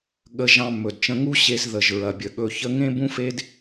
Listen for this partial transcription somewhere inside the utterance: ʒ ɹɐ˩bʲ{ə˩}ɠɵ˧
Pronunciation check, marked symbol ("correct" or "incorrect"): correct